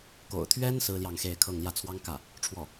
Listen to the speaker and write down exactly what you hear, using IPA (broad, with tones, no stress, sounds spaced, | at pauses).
k o̰˨˩ ʊ̯ t̪ʰ ɥ ɛ˥ n s ɹ̩˥ l j ɑ˥˧ ŋ x e˥˧ ɪ̯ kʰ ɤ˥˧ ŋ l j ä˥˩ t͡sʰ w ɑ˥ ŋ k ä˥˩ | ʈ͡ʂʰ w ɔ˥˩